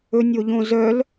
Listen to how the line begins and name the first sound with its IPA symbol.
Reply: ɵ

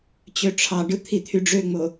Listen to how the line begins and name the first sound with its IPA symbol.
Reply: t͡ɕ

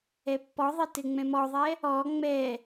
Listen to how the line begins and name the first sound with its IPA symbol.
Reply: ɛ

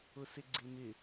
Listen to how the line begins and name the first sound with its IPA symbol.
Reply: ʊ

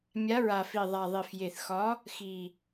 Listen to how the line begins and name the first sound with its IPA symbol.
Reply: mʲ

